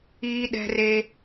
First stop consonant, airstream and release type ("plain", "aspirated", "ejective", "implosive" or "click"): implosive